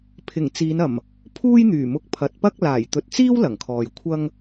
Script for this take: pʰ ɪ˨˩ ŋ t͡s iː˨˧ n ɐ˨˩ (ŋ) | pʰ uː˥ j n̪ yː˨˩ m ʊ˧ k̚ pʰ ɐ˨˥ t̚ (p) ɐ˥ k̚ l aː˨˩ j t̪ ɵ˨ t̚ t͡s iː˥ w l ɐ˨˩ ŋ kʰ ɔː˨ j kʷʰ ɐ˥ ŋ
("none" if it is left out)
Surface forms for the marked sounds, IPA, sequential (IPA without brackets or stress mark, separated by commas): m, p